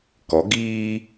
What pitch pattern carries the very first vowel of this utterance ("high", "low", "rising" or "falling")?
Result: rising